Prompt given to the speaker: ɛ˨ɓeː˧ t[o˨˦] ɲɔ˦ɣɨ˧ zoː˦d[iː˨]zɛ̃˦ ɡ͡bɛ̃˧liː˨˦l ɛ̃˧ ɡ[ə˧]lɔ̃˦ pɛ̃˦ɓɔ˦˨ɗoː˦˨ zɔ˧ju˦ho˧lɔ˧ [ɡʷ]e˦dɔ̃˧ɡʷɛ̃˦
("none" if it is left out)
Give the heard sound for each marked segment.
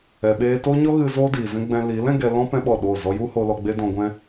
o˦, iː˨, ɛ˧, ɡ͡b

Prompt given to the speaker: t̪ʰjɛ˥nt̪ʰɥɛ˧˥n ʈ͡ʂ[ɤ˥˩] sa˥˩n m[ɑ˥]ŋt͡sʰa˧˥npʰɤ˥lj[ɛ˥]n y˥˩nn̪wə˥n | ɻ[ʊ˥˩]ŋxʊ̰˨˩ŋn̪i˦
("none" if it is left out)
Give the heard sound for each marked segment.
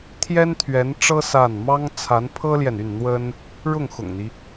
ɤ˥, ɑ˥, ɛ˨, ʊ˥˩

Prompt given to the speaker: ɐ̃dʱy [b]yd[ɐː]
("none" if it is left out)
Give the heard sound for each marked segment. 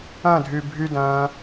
bʱ, ɐ̃ː

